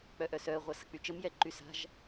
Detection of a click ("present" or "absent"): present